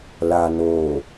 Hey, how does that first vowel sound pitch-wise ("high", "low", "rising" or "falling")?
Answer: low